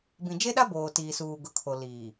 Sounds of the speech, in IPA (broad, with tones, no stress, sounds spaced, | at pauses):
b ĩ˨ d͡ʒ e˦ ɗ a˦ b oː˨ t iː˨ s uː˨ ɡ ʊ˨ kʰ o˨ l iː˨